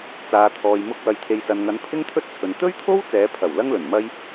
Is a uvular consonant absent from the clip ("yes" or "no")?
yes